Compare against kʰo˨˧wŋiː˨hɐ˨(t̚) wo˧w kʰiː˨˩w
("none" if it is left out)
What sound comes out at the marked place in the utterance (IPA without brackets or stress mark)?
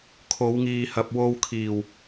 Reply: p̚